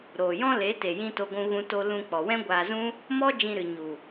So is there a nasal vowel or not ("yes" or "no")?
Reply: yes